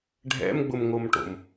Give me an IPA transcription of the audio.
ɖʱɛ̰mɡ͡bʊmŋomʈo̰m

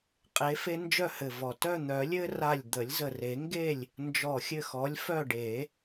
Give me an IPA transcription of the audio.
qʼe˨˥fe˦nd͡ʒœ˥˨hɘ˧˩ vɔ˧˩ tœ˥˨n̪œ˨˩˦ lʲɘ˦ra˧˩lʲ d̪ə˨˩˦lʲzə˧˩re˨˩˦ŋɡe˥˨lʲ | nd͡ʒɔ˧˩xʲɘ˥˨xɔ˨˥lʲ fœ˥˨ɖe˨˩˦

